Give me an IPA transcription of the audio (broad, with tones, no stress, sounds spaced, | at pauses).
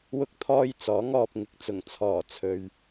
w ʊ˧ k̚ t̪ʰ ɔː˧ j t͡s ɔː˨˥ ŋ ɔː˨ p̚ ŋ ɪ˨˥ k̚ t͡s ʊ˨˩ ŋ t͡sʰ ɔː˨˩ t͡sʰ ɵ˨ ɥ